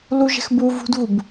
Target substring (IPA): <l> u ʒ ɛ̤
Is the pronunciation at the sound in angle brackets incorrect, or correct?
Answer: correct